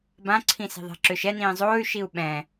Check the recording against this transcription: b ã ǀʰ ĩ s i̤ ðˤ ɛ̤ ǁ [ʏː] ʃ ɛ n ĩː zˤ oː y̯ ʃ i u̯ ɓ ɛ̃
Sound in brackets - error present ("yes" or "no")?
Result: no